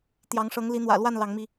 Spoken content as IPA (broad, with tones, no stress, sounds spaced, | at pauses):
t̪ j ɑ˨˦ ŋ ʂ ɤ˨˦ ŋ l i˨˦ n̪ w ä̰˨˩ l w a˥˨ n l ɑ˨˦ ŋ m i˧